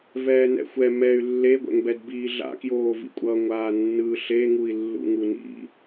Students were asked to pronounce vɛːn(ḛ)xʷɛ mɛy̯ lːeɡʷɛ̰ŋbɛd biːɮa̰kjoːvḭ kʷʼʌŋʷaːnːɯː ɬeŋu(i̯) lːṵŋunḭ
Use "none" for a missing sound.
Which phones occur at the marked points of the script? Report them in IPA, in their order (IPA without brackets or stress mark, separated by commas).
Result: ɛ̰, i̯